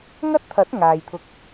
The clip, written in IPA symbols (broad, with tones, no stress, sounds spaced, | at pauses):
ŋ ɐ˥ t̚ t̪ʰ ɐ˨˥ t̚ ŋ aː˨ j t̪ʰ ʊ˧ k̚